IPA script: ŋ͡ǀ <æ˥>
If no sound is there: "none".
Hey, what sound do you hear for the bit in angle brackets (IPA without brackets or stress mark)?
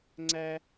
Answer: æ˥